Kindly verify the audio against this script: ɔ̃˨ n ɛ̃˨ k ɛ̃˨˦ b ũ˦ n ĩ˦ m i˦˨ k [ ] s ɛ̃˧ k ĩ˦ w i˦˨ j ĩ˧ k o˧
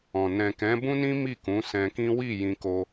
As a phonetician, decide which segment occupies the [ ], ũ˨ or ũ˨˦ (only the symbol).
ũ˨˦